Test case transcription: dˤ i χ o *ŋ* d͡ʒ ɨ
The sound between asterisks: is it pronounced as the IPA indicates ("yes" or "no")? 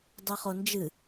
no